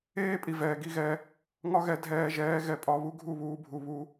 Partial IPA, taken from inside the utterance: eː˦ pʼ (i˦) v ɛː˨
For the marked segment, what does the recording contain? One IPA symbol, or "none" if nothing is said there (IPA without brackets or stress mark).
i˨